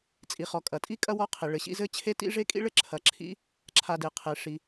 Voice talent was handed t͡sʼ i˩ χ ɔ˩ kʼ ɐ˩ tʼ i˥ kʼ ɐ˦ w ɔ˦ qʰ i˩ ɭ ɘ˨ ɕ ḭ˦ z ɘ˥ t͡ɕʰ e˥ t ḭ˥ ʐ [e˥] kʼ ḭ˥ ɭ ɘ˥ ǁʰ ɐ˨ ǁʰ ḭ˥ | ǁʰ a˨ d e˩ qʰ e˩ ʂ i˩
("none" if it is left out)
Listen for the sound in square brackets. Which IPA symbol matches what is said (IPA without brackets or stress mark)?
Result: e˥